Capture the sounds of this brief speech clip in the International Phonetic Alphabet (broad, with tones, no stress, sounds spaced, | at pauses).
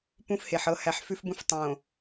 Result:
p ũ˦ f h e˨ ħ ɤ˦ h æ˦ ħ f ʉ˦ f b ũ˦ f tˤ õ˨